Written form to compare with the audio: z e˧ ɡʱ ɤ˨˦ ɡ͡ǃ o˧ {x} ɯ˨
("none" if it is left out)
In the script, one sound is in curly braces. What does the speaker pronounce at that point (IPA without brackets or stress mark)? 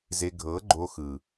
x